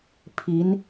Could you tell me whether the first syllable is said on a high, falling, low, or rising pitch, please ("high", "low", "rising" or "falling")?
rising